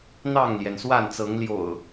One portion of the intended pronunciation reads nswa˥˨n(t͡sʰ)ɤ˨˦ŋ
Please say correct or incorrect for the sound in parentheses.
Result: incorrect